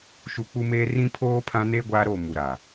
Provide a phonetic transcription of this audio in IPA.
ʃ u˨ k͡p u˦ m eː˦ r ĩ˦ pʰ oː˦ pʰ ã˦ n eː˦ ɡʷ aː˦ ɾ o˦˨ m u˨ ɾ a˨

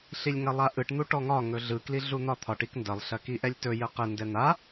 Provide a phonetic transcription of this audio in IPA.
ɬ i lʲ ŋ ɐ lˠ a ʔ ɯ ʈ n̪ u ʈ ɔ ŋ ɒ ŋ ɵ ɮ ɯ k l i ɮ u n̪ ɒ t̪ʰ ɒ ʈ i k n d ɐ lˠ ɬ ɐ k i ʔ ɛ lʲ t ɵ j ə q ə n d ɛ n̪ a

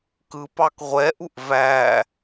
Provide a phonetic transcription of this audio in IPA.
k ɯ p ɑ k ʁʷ ɛ ʔ u ʔ v æ

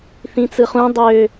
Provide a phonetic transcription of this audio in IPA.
θ ĩ t͡s ɯ χ ũ dˤ ø

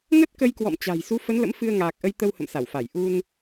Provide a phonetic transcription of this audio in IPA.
ŋ ə˦˥ t̚ k ə˧ j k w ɔ̰˧˨ m t͡ɕ a̤˨˩ j s u˨˦ f ə˨˦ n l ə̰˧˥ m f ɨ˧ ə̯ ŋ aː˨˩ k̚ ʔ ə˧ j t̪ ə˧ w h ə̰˧˨ m s a˧˩ w f a˧˩ j ʔ u˧ n

